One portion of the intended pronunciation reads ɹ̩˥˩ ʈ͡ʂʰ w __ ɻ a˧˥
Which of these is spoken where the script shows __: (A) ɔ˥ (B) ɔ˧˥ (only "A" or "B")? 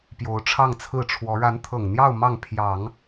B